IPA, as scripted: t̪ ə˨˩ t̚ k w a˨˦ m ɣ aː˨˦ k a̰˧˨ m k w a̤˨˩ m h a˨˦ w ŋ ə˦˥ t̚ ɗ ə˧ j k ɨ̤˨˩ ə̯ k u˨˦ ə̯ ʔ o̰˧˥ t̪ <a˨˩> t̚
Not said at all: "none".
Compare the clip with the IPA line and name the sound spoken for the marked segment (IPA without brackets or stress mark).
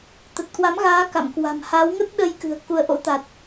a˨˩